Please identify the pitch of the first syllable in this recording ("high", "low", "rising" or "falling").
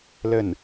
falling